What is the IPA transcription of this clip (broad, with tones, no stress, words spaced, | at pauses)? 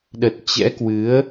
ɗə˨˩t̚ t͡ɕɛ̰˧˥kwɨ˨˦ə̯